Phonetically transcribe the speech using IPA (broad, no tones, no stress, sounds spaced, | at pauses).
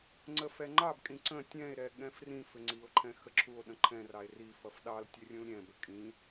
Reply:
ŋ͡ǀ ə f ɛ ŋ͡ǃ ɑ b kʼ ĩ ǀ ə̃ tʲ ɛ̃ e̯ ɾ ɛ ɠ ɛ̃ f r ĩ f ʏ ŋ͡ǀ i o̯ ǃʰ ɛ̃ x ə ǁʰ u o̯ ɗ ə̃ ǃʰ ɛ̃ r ɑ e̯ r i f ʌ f ɗ ɑ l tʲ ɛ rʲ ũ l ɾʲ ɛ̃ b ə kʼ ĩ